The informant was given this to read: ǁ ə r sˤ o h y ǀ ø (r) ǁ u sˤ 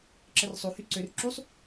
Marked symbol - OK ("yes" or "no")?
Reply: yes